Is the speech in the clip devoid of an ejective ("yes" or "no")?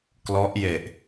yes